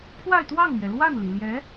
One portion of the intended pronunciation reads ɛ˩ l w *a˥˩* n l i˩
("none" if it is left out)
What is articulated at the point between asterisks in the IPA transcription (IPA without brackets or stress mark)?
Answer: a˥˩